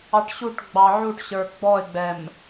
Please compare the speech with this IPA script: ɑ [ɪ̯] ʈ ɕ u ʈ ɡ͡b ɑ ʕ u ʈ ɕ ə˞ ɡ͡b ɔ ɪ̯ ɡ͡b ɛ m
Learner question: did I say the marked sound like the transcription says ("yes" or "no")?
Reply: no